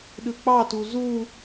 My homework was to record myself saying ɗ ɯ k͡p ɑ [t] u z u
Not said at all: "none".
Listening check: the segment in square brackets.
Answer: t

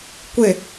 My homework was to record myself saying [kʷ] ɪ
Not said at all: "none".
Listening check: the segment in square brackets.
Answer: kʷ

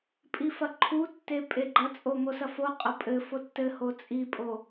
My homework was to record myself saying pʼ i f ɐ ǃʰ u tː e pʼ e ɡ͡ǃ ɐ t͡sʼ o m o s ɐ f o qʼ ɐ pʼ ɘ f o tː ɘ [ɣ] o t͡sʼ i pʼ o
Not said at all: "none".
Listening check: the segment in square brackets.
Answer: h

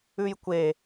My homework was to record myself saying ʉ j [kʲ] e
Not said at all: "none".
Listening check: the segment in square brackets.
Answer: kʷ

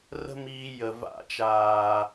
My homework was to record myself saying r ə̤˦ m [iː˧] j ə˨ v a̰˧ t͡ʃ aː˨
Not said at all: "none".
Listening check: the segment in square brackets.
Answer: iː˧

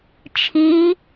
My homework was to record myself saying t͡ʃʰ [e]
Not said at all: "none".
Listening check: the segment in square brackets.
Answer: i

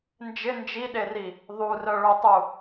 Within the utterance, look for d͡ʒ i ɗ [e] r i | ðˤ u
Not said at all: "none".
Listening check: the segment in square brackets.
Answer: e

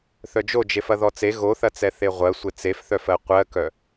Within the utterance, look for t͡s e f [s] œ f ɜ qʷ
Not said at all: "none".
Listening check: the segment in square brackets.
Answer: θ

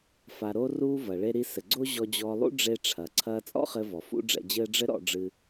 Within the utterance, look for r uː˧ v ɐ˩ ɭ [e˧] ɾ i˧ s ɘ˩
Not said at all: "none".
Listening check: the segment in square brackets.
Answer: e˧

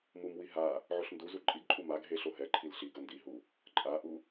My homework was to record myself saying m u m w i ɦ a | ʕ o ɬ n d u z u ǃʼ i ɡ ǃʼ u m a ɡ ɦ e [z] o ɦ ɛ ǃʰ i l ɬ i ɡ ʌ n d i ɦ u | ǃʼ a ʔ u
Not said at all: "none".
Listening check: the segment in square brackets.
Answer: ɬ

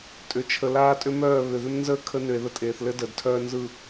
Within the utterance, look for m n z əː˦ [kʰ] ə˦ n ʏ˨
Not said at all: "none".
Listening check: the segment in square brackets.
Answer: kʰ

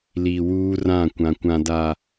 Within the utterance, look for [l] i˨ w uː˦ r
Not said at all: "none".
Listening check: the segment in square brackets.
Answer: l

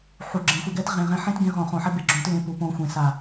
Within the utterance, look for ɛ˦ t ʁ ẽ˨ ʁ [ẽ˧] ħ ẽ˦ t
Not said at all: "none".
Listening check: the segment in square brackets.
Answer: ɛ̃˧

